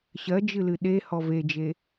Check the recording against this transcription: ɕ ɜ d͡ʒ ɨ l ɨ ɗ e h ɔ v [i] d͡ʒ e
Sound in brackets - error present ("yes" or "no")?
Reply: yes